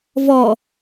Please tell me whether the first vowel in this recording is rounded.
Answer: yes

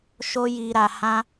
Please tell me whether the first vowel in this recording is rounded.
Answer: yes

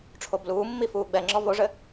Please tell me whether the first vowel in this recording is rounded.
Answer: yes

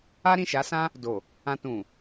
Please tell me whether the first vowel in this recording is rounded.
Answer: no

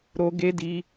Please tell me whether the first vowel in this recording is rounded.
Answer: yes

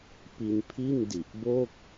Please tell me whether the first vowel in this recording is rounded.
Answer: no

